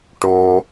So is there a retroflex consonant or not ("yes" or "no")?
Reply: yes